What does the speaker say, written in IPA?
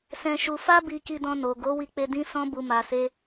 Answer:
s ɛ̃˧ ʃ u˧ f a˦ b i˧ k i˧ d ɔ̃˧ n o˨ ɡ o˨˦ w i˧ k͡p e˧ d ĩ˦ s ɔ̃˦ b u˧ m a˧ s e˦

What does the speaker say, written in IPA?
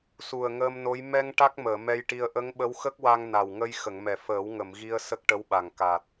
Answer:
s u˨˩ ə̯ ŋ əː˧ m n o˧˥ j m ɛ˧ ŋ ʈ a˦˥ k̚ m əː˨˩˨ m ɛ˧ j ʈ i˧ ə̯ ʔ ə˧˥ ŋ ɓ ə˧˥ w x ə˦˥ k̚ w a˧ ŋ n a˨˩ w ŋ ə˧ j x ə˨˩˨ ŋ m ɛ˨˩ f əː˨˩˦ w ŋ ə˨˩˨ m ɣ i˧ ə̯ s ə˦˥ k̚ ʈ ə˧˥ w ɓ a˨˩ ŋ k a˨˩ t̚

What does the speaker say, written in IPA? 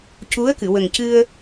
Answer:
c u˧˥ ə̯ k ɨ˨˩˨ w ə˨˩ ŋ c ɨ˧ ə̯

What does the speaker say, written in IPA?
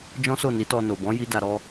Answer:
d͡ʒ ɔ̃˦ s o˦˨ n i˨˦ t ɔ˧ n o˨ b ɔ̃˨˦ j i˦ d a˧ ɾ ɔ˦

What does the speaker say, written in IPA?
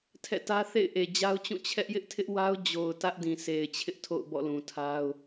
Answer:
tʰ ɛ̰˦˨ t ä˦ θ ḛ˦˨ ɪ̯ ʔ e˨ d͡ʑ a˦ ʊ̯ t͡ɕ ũ˦˨ t͡ɕʰ ɛ˦ ʔ j ɪ˦ ʔ tʰ ɪ˦ ʔ w a˦ ʊ̯ d͡ʑ o˨ ʊ̯ t ä˦ ʔ d ĩ˨ sʰ e˨ ɪ̯ t͡ɕʰ ɪ˦ ʔ tʰ o̰˦˨ ʊ̯ b ɔ̰˦˨ l ũ˨ tʰ a˦ ʊ̯

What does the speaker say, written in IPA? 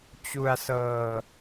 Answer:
t͡ɕ u˧ a̯ s ɤː˧

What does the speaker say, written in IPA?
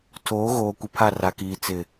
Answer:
tʰ oː˨˦ ɣ oː˨ kʷ ɪ˨ pʰ a˦˨ r a˨ k iː˨ t͡s ɪ˨

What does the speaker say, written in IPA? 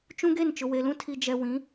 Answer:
t͡ʃ ũ˦ ɡ e˦˨ n t͡ʃ ʊ˨ w e˨ l ũ˦ tʰ i˨ d͡ʒ ɛ˨ w ĩ˨˦

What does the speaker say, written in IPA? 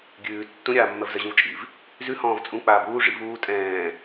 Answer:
ɡʲ ʉː tː ũ ɾʲ aː mː ɜ v z ɜ ʑ ũ v t͡ʃʼ ḭ v | z ʉ h ɔ̃ː v t͡sʼ ũ k͡p aː b uː ʐ ḭ v uː tʼ ɛ̃ː

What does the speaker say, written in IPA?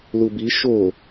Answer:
l u b i ʃ o

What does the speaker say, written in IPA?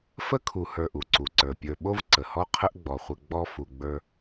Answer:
f ə˥ kʰ u˨ h ə˞˨ ʔ u˩ ǀ u˩ ǀ ə˞˩ pʲ ə˞˨ ɓ o˦ v ǀ ə˩ h ɔ˦ qʰ ə˦ ʔ ɡ͡b ɔ˩ χʷ ə˨ ɡ͡b ɔ˦ f u˨ ɡ͡b ə˞˦

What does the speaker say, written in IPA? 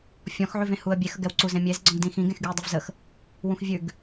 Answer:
fʲ ɔ̃ x ʕ ʉ v ẽ h u ə̯ bʲ e x ə ɡ ɛ w ǀ u z ẽ mʲ e z ɡ͡ǀ ɔ̃ ɡ d ĩ x ĩ ɡ ẽ x ɡ y ə̯ dˤ ɛ v z ə x | w ũ x vʲ ʉ ɡ

